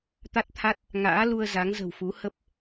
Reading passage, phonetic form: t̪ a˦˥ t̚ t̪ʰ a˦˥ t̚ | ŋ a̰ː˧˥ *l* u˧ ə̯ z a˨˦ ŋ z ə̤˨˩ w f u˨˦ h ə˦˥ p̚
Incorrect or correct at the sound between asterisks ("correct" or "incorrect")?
correct